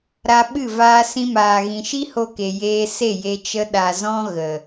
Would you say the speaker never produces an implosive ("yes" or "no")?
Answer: no